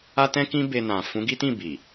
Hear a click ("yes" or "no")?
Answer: no